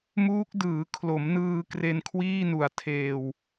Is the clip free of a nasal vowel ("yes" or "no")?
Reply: yes